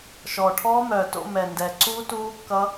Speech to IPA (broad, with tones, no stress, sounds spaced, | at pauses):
ʃ ɔː˨˩ ʈʰ ɔː˦˥ m œː˨˩ t o̰˥˧ m ɛ˨˩ n d ɛ˨˩ ǀ uː˦˥ t uː˦˥ kː ʌ˦˥